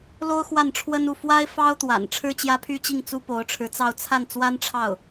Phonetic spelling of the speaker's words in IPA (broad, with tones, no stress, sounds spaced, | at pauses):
l o˥ ʊ̯ x w a˥˩ n ʈ͡ʂʰ w ə˥ n u˥˩ f w a˥ ɪ̯ f ɑ˥ ʊ̯ t̪ w a̰˨˩ n ʈ͡ʂʰ ɻ̩˥ t͡ɕ j ä˥ pʰ y˥ t͡ɕ i˥˩ ŋ t͡s u˥ p o˧˥ ʊ̯ ʈ͡ʂʰ ɻ̩˧˥ t͡s ɑ˥˧ ʊ̯ t͡sʰ a˥˩ n t͡s w a˥ n ʈ͡ʂʰ ɑ˥˩ ʊ̯